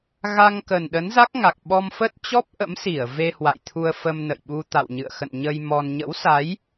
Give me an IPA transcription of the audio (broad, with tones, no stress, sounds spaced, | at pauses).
ɣ a˧ ŋ k ə˨˩ n ɗ ə˨˦ n z a˦˥ k̚ ŋ a˨˩ k̚ ɓ ɔ˧ m f ə˦˥ t̚ t͡ɕ ɔ˦˥ p̚ ʔ ə̰˧˥ m s i˧˩ ə̯ v e˧ h w a̰˧˨ j t̪ʰ u˧ ə̯ f ə˧ m n ə̰˧˨ j ɓ u˧ t̪ a̰˧˨ w ɲ ɨ̰˧˨ ə̯ x ə̰˧˨ n ɲ ə˧ j m ɔ˧ n ɲ ə̰˧˥ w s a˨˦ j